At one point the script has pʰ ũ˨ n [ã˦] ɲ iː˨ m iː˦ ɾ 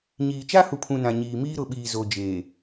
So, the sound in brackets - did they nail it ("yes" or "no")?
no